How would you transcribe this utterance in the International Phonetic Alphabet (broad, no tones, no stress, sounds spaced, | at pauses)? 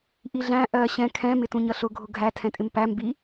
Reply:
ʔ i ɮ æ̃ ʔ ɜ ɕ ɛ̃ kʰ ɛ̃ m ɪ t ũ ɲ ʌ ɬ ʊ ɡʱ ʊ ɡʱ æ tʰ ɛ̃ tʼ ɪ m p æ m b i